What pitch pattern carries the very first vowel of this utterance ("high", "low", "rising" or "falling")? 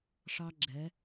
high